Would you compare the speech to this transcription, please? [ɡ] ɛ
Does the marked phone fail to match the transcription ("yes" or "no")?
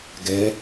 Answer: no